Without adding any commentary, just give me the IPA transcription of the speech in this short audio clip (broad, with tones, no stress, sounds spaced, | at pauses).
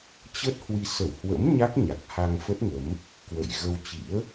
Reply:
t͡ɕ ə˦˥ t̚ h w i˧ s ə˧˩ w h w ə̰˧˥ m ɲ a˦˥ k̚ ɲ a˨˩ k̚ h a˧ ŋ f ə˦˥ t̚ ŋ ə˨˦ m | k w ə̰˧˨ j ɣ ə˧ w t͡ɕ ḭ˧˥ ə̯